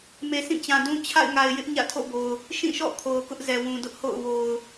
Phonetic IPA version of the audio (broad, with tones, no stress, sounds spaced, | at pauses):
m e˨ s ĩ˦˨ t͡ɕ ã˨ d ũ˦ t͡ɕʰ a̰˦˨ ɪ̯ ŋ a˨ ɪ̯ j ɪ˦ ʔ ɲ ä̰˦˨ tʰ o̰˦˨ b o˨ ʊ̯ | ʃ ĩ˦˨ ʃ ɔ̰˦˨ kʰ o˨ ʊ̯ k ʊ˦ ʔ z ɛ˨ w ũ˨ d ʊ˦ ʔ h o̰˦˨ ʊ̯ w o˨ ʊ̯